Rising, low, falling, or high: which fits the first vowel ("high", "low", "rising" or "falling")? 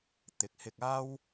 rising